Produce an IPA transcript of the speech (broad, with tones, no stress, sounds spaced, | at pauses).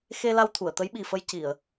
x e˧ l a˧ w t̪ʰ u˨˩˨ ə̯ t̪ ə˧˥ j ɓ i˨˩ f ə˧ j c i˨˩˨ ə̯